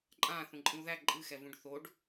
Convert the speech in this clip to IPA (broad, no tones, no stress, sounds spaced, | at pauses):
ǃʼ ã θ ũ ǃʼ ĩ u̯ ð æ ǃʼ ɨ x ɛ v ũ ɖ θ o ɖ